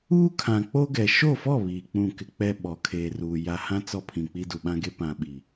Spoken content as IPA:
uː˦ kʰ ã˨ k͡p o˦ ɡ ɛ˨ ʃ o˦˨ f ɔ˦˨ β iː˨ k͡p ũ˦˨ k ɪ˦ k͡p ɛ˦ ɓ ɔ˨˦ kʰ eː˨ r uː˨ j a˨ h ã˦ t͡s ɔ˦ pʰ ĩ˨ k͡p i˦ d u˨ ɓ ã˦ ɡ e˦ p ã˨ ɓ i˨

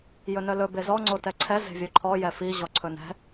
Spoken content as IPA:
j ɵ n œ l ɵ b e z ɔ ŋ͡ǀ o t ɛ ǀʰ ɛ z e̤ vʲ œ ǃʰ ɔ j ɛ f i ʑ ɔ ǀʰ ɵ n ɛ̤

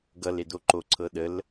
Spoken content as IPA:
ɡ ʌ l e d o ǃ o ǀʰ ɤ ɗ ə l

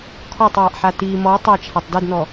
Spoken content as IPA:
kʰ ɔ tˤ w a ʔ ħ a t i m ɔ tˤ a t͡ʃʰ a tˤ d e d n ɔ

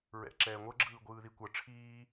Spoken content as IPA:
ɹ ɛ̰ ǁ ɛː ŋʷ ɤ ɡ͡ǁ ɯː ɡʷ ɯː ð i kʷ ɤ ʈ͡ʂʰ iː

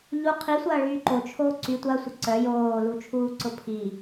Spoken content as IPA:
ʎ u qʰ i sʷ ɐː ɭ yː ǃ o t͡ʃʰ oː ǀ y tʷ ɐ sʷ ə ǀ œ j oː l u t͡ʃʰ uː ǀ ʊ pʰ i

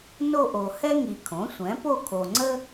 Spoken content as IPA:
n o˥˧ ʔ o˨ h ɛ˥ ŋ i˨ kʰ õ˩˥ sʷ ɛ̃˩˥ p o˥˧ kʰ o˨ ŋ͡ǀ ə˥

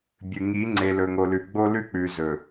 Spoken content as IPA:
bʲ ɨ˨ ŋ i˨˦ ŋ͡ǀ e˨ l ɵ˨ ŋ o˨ l ʉ˨ ɡ͡b o˦ l ʉ˦ k͡p ʉ˨ z ɵ˨

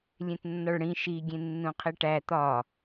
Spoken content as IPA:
lʲ ẽ t nː ɒ ɭ ɽ ĩ ʃ i ɡʲ ẽ nː ũ qʰ i ʈ æ t̪ ɒ

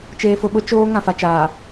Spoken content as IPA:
t͡ʃ eː˨ f ʊ˨ ɓ ʊ˦ t͡ʃ oː˦ ŋ ã˨ f a˨ t͡ʃ aː˨

